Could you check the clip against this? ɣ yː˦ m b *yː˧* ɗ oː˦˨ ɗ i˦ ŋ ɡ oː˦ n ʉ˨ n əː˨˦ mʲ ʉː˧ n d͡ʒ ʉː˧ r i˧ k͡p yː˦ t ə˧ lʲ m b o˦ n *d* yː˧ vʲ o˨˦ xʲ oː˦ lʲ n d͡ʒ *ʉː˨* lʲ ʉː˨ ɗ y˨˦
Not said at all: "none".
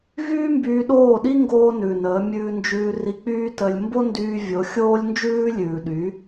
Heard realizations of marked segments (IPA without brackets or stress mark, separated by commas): yː˧, d, ʉː˦